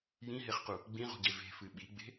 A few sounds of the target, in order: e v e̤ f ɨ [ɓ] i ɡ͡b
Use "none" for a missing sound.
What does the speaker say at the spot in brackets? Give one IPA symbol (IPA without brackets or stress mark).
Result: ɓ